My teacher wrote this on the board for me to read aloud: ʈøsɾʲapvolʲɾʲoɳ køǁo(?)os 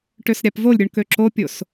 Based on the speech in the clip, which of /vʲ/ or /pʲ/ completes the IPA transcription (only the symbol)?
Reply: pʲ